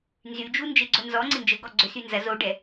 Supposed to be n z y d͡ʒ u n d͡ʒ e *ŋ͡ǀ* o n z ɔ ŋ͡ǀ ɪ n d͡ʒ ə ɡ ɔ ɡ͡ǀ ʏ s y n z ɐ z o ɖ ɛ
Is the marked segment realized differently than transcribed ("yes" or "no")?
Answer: yes